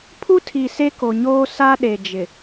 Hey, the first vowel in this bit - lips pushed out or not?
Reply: yes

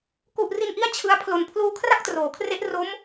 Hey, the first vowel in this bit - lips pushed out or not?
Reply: yes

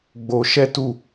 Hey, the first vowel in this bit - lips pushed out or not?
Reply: yes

